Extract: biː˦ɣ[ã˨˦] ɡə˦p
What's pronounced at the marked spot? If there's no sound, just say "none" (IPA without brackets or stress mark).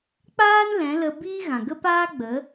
ã˨